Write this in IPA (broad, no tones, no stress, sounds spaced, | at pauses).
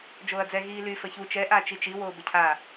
d͡ʒ oː ɐ̯ d͡z ɛ ɣ iː l y f ə ç u t͡ʃ ɛ ʔ a t͡ʃ i t͡ʃ i w oː b ə cʰ a